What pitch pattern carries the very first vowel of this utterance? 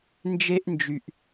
high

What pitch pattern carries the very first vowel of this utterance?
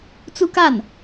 high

